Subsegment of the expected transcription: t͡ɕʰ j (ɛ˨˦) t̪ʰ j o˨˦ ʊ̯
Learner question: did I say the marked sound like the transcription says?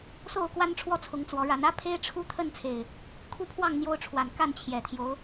no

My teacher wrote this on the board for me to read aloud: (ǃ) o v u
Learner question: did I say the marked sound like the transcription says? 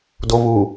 no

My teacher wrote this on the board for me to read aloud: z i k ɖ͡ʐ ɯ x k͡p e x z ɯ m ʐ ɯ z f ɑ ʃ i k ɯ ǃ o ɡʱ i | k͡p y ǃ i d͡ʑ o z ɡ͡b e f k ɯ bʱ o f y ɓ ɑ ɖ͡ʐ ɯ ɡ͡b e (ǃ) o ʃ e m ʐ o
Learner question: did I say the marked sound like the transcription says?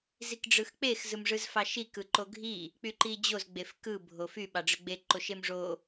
yes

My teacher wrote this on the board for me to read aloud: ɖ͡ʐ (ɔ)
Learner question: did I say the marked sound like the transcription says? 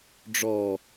yes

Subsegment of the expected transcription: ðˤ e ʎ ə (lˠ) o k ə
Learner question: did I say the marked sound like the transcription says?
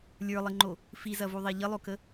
yes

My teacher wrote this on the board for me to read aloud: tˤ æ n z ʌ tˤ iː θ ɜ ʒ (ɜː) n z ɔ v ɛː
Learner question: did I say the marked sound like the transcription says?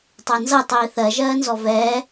yes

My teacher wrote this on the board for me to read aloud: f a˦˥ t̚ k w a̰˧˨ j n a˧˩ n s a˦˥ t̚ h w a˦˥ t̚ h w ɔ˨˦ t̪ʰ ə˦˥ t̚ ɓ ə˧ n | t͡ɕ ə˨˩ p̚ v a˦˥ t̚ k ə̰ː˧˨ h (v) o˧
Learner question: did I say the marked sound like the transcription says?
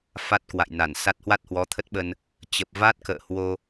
no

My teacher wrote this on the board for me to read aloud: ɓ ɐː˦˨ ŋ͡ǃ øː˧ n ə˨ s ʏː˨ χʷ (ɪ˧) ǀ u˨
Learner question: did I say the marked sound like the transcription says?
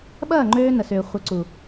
no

